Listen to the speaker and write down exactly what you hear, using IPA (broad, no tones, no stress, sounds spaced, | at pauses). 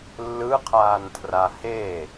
lː ɯ qʰ aː n tʰ r a h e